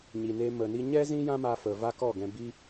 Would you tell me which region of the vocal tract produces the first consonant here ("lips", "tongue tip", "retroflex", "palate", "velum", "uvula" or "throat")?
palate